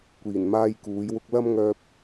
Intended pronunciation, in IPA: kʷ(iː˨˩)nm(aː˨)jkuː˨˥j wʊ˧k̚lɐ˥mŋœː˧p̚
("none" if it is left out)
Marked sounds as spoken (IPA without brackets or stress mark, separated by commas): iː˨˩, aː˥